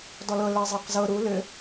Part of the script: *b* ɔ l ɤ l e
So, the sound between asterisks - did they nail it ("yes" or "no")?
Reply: no